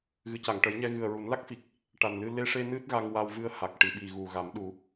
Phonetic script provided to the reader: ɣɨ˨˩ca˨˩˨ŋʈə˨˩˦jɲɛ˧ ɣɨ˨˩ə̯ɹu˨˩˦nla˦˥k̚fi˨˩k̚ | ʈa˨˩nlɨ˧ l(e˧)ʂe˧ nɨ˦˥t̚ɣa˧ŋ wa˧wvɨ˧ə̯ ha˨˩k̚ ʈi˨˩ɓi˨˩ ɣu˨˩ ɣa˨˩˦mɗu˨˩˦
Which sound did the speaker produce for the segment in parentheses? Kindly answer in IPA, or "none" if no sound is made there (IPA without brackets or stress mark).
e˧